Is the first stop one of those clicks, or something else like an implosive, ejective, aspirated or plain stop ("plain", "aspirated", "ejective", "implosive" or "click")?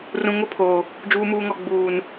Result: aspirated